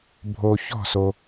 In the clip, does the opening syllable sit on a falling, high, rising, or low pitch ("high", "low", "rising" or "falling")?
low